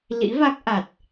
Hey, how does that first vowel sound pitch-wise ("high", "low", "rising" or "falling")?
rising